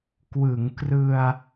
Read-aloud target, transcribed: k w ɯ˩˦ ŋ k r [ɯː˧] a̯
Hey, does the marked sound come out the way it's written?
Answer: no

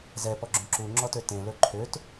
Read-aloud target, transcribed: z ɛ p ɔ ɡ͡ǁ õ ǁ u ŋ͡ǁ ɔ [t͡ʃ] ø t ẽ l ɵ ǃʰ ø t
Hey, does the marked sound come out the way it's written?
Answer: no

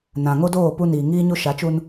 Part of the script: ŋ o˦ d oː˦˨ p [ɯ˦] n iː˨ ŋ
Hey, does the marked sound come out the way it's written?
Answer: no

